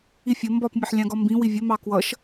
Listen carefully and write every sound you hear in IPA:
ifʲə mbɒpmʲɛħ lʲɑ̃ɡɒmbĩ wivʲə mɑkwʌʃ

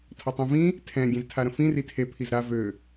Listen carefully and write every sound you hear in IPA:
tʰɔtˤĩvĩ | tʰɛ̃ ɡʲẽztʰaɾə̃fĩ ritʰe pʰizɾa vø

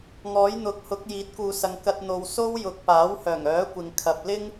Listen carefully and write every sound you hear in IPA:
ŋɔː˨˥jn̪ʊ˨k̚hʊ˨˥k̚ jiː˨˥t̚kuː˨sɐ˨ŋ kɐ˧t̚n̪o˨w so˥wjʊ˨k̚ paː˨˥whœː˨˩ŋœː˨˥kʷɪ˨ŋ kʰɐ˨p̚ lɪ˥ŋ

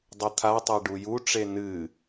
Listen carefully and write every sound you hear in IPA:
dˤut̪ʰatˤe ɖujuʈ͡ʂe nɨ

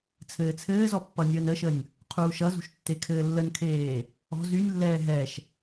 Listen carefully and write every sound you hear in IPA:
t͡sʰɘːt͡sʰɘːzɔ pːʌnʲəːnəʃənʲ | qʰuːʃʌzṳʃ tːekʰɘːlːənkʰeː | ɔ̤ zynʲlːɛː ɦɛʃ

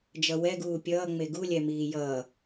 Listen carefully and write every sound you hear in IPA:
d͡ʒʌwɛɡuː pʲʌːŋ͡me ɡulʲɛmiː jʌː

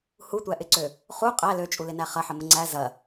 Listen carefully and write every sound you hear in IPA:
hutʷæʔɪǀø | χu qʼæ løt͡ʃʼulɪnæ χɐħəmə ŋ͡ǀæ zɐ

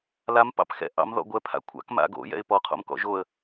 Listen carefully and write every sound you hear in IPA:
lam pɑ̰pxɛ̰ ʔɑ̰m ðɔ̰ɡʷɛ pʰa̰kʷʰa̰k ma̰ɡo̰ jɛ̰ɪ̯pɔ qʰo̰mkɔ̰ʒoə̯

